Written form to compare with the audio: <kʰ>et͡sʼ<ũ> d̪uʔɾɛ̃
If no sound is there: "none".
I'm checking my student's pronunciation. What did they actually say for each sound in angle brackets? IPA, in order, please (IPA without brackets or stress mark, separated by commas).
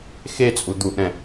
x, u